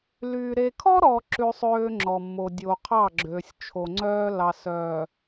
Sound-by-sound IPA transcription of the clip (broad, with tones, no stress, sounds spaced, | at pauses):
l yː˨ ɾ e˨ kʰ ɔ˦ ɾ ɔ˨ ǁ ʉ˦ sˤ øː˦ ŋ͡ǁ ɔ˨ mː o˨ dʲ o˨ qʰ ɑ˦˨ ɡ͡ǁ ø˨ sʲ t͡ʃʰ o˨ ŋ͡ǀ œː˦ l ɑ˨ s œː˨